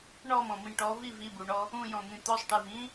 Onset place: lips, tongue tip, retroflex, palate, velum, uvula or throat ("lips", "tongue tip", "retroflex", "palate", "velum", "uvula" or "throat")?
retroflex